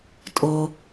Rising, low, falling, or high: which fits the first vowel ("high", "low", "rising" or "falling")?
low